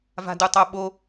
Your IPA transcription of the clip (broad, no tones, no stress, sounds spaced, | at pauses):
v a̤ d u tˤ o ɓ o